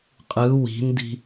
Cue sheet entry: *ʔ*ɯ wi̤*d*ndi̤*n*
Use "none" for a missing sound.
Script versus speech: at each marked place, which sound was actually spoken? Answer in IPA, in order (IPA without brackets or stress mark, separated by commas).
qʼ, none, none